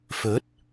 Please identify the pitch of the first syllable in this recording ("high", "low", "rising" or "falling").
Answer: rising